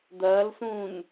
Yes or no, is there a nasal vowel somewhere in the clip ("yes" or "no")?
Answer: yes